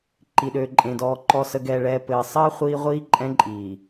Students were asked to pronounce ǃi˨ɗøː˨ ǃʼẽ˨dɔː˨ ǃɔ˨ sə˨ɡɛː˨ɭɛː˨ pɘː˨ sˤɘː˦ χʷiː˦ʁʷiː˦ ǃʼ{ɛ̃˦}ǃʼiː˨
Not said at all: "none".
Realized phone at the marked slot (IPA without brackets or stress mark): ɛ̃˦